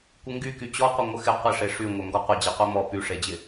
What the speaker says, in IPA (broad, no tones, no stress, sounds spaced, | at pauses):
kʷ ɪ ŋ ɡ y k y t͡ɕ ɔ qʷ ɪ ŋʷ ə x ɪ qʷ ɪ ʂ e ʂ y ŋʷ œ ŋ ɡ ɔ qʷ ə d͡ʑ e qʷ e m ɔ p y ʂ e d͡ʑ ɪ